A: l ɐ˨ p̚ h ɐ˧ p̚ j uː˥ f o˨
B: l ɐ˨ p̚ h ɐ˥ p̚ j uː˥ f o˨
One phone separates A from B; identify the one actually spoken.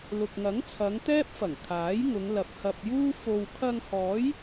A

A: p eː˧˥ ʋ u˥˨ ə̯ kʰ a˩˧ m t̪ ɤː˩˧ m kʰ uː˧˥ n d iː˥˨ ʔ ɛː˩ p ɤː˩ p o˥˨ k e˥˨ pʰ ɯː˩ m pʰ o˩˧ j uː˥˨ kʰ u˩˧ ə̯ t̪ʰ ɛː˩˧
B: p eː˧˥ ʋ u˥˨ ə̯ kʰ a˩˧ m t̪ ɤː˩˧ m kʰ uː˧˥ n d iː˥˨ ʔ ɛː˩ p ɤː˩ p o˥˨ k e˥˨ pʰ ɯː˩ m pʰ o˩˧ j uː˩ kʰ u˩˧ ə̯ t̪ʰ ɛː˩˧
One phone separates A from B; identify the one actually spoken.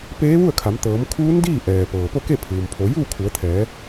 A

